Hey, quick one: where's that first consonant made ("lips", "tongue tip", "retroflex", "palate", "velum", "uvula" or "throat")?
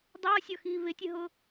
tongue tip